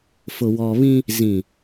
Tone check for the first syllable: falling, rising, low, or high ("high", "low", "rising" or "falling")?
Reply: low